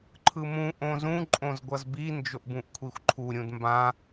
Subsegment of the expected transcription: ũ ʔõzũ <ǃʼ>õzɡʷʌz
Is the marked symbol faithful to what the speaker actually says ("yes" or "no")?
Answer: yes